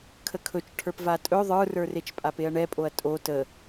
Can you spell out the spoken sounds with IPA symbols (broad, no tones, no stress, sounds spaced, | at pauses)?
kʰ ə kʰ ɵ t͡ʃ ʈʰ ə˞ p v a tʼ ɵ ðˤ ə˞ r ə˞ r e t͡ʃ pʼ a p e ɐ̯ ɳ ɛ pʼ o ɐ̯ tʼ o t ə